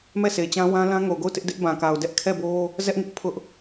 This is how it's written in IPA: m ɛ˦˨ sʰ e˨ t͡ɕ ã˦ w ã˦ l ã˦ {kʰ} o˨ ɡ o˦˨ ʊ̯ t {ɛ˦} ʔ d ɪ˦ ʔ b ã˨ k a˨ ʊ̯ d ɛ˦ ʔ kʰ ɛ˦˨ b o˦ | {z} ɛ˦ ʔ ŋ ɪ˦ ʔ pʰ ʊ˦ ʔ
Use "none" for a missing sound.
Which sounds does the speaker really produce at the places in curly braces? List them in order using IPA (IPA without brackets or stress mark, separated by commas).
ŋ, ɪ˦, z